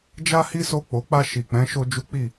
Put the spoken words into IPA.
d͡ʒ a˦ h i˦ s o˧ k͡p o˨ k͡p a˧ ʃ i˨ k͡p ɛ̃˨˦ ʃ o˦ d͡ʒ u˦ k͡p i˦˨

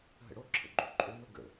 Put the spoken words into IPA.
ɦ ə̰ ɽ o ǁʰ ə̰ ɡ͡ǃ o ǃʼ o n o ɡ ə̰

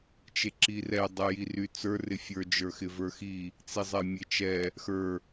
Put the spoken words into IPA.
t͡ʃ e ǁ i r ɛ dˤ ɛ j i r y t͡s ə˞ r ɪ fʲ ə˞ d͡ʒ ə˞ x ɪ v ə˞ x i | t͡s i zˤ ɛ mʲ e t͡ʃ ɛ | x ə˞

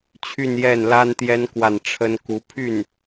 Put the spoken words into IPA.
t͡ɕʰ y˥˧ n j ɛ˥˩ n l a˥ n t̪ j ɛ˥ n k w a˥˩ n ʈ͡ʂʰ ə˥ n k u˧˥ pʰ y˥˩ n

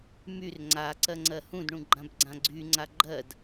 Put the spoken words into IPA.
m y r ŋ͡ǀ a ǀ ɜ ŋ͡ǀ ɜ h ũ d ɳ ũ ɡ͡ǃ ã b ɡ͡ǀ ã ɡ͡ǀ y ŋ͡ǀ a ɡ͡ǃ ɜ d

